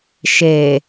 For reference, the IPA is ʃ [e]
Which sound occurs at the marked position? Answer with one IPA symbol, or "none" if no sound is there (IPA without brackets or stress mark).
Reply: e